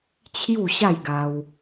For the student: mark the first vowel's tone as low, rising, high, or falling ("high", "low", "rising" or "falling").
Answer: falling